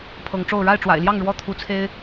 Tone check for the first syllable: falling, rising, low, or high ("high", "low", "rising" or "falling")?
rising